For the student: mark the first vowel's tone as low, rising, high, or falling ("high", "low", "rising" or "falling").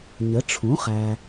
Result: rising